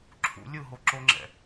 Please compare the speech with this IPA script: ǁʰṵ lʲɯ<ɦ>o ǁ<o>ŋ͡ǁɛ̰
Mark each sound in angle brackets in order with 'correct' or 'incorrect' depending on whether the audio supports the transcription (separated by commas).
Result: correct, correct